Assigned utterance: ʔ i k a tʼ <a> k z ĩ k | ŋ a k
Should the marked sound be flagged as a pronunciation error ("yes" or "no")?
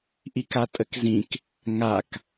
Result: yes